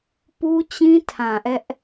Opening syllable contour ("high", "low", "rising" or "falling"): high